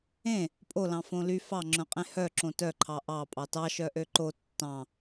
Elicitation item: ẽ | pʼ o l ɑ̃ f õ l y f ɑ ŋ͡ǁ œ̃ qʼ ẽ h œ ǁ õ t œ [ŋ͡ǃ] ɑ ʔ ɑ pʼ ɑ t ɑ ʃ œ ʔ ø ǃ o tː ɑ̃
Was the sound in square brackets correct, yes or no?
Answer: no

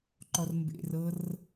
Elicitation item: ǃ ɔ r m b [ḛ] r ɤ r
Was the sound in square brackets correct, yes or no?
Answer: yes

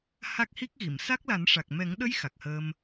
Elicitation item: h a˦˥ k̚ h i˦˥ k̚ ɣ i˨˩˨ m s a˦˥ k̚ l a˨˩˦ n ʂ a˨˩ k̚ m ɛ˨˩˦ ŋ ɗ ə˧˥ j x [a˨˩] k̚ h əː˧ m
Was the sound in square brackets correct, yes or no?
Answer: yes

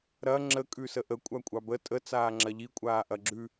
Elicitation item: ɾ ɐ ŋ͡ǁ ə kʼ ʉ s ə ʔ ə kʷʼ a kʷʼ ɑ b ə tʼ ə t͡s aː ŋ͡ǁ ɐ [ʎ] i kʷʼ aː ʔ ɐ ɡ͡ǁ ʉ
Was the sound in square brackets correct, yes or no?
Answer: yes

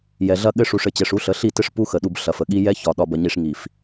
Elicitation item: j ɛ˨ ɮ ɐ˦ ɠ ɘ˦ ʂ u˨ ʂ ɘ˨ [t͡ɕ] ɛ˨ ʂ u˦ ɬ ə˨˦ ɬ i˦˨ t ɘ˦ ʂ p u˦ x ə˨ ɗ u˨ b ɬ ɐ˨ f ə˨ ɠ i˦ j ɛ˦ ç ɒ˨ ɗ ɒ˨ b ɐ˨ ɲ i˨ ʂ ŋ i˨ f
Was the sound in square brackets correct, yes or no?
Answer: yes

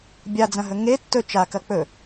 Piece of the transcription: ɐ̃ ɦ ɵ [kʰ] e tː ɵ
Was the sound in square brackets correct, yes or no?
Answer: no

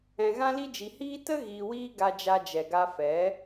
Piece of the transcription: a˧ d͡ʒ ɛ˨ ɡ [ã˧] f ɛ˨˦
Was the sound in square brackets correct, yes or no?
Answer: no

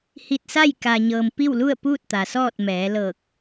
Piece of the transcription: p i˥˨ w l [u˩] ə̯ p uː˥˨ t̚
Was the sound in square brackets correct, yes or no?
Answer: no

